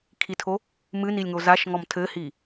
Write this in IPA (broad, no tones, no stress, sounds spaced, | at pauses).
kʰ i tʰ o | m ɨ n i lʲ ŋ o z a ʃ ŋ ɔ m tʰ ɘ h i